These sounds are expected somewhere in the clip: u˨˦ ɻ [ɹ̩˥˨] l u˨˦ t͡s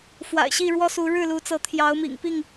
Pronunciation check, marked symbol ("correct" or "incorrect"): incorrect